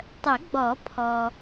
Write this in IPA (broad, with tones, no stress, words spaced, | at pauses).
tˤə˨˩˦ɡ͡bɔ˨˩˦pʰɔ˨